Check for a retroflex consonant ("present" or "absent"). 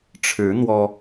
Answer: present